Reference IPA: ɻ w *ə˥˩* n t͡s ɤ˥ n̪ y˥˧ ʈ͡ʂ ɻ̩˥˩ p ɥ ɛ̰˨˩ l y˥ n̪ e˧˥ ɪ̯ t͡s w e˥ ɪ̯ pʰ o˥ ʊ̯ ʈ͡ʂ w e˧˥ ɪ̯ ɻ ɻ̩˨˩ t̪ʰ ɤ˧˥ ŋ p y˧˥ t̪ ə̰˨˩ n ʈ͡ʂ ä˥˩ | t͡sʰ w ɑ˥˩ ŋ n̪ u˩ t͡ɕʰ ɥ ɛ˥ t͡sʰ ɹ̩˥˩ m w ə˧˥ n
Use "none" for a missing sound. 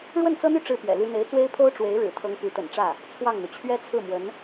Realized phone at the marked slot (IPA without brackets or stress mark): ə˥˩